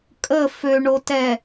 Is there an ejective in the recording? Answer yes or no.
yes